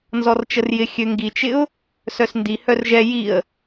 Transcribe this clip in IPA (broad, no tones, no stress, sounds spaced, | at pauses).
n z ɔ r t͡ʃ ə r j ɪ xʲ ø ŋ ɡ i t͡ʃ ɪ ʊ̯ | s œ s n d i h œ r ʒ ɛ j i ə̯